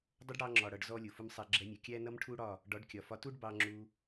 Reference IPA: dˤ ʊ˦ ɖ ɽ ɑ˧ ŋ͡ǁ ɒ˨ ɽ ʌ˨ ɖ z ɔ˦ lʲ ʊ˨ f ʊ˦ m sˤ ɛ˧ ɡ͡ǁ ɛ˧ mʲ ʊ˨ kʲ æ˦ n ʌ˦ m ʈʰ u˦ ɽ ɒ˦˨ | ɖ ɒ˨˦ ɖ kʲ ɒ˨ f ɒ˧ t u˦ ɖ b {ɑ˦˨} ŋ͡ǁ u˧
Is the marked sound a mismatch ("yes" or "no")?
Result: yes